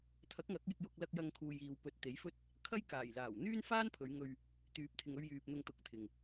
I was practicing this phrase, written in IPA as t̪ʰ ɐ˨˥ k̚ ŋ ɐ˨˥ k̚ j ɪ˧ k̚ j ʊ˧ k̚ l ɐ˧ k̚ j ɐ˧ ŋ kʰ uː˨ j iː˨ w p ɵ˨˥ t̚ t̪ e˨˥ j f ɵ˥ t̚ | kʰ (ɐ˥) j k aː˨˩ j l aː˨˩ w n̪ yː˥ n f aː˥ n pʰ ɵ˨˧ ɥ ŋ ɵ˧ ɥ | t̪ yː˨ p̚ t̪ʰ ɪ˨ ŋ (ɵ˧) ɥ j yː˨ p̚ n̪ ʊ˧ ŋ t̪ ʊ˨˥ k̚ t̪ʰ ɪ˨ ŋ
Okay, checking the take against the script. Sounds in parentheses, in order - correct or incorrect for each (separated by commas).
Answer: correct, correct